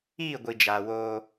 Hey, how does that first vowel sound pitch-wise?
falling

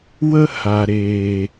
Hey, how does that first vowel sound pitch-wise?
high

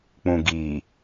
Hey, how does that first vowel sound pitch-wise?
low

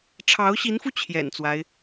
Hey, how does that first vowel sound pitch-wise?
rising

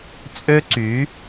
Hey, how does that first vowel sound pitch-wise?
high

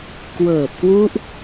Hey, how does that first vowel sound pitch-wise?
low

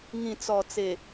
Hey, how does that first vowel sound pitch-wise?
low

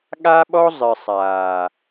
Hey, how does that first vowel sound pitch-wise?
high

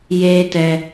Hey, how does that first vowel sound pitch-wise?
high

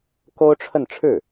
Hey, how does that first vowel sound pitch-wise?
high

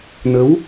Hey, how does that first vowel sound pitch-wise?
rising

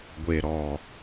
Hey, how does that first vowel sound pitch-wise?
low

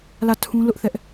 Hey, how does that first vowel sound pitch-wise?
falling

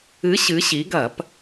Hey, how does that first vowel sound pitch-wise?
rising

